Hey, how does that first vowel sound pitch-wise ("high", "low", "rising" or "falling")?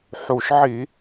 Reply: low